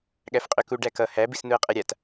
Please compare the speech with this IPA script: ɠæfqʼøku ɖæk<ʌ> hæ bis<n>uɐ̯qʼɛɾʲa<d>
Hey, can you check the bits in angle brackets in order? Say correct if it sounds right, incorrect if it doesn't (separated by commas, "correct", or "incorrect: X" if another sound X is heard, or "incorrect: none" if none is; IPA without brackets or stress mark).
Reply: correct, correct, incorrect: t